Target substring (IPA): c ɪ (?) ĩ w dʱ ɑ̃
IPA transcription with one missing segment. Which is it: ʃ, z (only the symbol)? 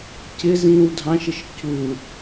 z